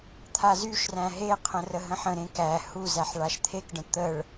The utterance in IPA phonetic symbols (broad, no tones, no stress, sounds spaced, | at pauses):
t̪ʰ a z y ʃ r æ̃ ɦ e qʰ ə̃ r ə ɦ ə̃ ħ ə̃ ɾ ẽ k æ h u z æ ħ ɭ a ʃ t̪ʰ e k ɖ ə̃ t̪ ə ɭ